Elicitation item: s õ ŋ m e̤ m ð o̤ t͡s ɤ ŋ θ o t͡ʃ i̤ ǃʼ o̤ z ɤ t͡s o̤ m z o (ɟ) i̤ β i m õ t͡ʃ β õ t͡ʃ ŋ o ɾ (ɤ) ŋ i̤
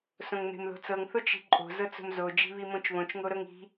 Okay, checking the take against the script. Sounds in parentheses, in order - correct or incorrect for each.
incorrect, correct

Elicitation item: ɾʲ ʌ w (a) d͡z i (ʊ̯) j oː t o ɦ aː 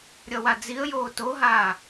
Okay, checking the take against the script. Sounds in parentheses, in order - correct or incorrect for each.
correct, incorrect

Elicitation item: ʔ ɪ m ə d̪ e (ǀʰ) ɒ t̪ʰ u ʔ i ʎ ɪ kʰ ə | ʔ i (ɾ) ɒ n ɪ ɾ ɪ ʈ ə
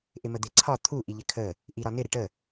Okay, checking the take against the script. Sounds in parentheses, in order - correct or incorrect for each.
correct, correct

